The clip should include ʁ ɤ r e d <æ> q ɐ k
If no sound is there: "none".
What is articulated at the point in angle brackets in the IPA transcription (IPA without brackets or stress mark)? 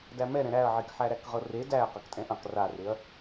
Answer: æ